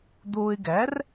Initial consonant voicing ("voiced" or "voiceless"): voiced